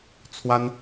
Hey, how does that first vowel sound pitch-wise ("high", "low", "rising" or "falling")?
high